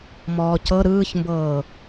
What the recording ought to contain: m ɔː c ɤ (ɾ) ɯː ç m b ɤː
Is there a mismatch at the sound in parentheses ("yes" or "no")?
no